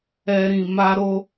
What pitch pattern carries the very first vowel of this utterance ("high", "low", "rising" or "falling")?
high